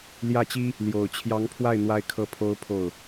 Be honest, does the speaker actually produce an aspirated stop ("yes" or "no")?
yes